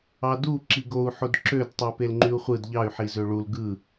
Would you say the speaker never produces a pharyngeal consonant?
no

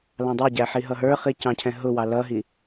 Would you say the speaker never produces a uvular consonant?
no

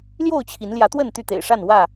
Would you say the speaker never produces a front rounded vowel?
no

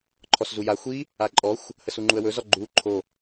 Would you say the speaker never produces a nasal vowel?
yes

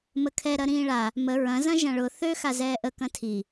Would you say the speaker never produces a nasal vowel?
no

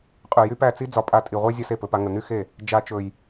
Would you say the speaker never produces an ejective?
no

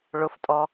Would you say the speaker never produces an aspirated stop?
yes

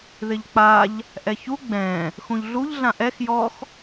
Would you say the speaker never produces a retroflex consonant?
yes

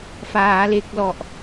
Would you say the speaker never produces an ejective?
yes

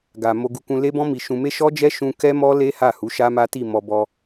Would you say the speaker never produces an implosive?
yes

